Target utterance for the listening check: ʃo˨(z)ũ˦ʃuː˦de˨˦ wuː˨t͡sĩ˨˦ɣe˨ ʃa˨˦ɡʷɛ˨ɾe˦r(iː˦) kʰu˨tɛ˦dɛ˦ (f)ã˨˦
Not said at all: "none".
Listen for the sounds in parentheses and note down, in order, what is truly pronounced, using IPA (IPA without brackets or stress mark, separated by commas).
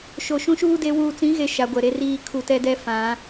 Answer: ʃ, iː˦, f